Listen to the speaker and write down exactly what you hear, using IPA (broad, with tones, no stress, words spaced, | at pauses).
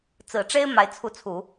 t͡sɹ̩˨˩ʈ͡ʂe˥ɪ̯ ma˧˥ɪ̯t͡sʰu˧˥t͡sʰu˨˩˦